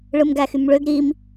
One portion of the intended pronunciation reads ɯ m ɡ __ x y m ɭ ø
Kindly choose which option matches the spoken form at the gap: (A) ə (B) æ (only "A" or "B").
B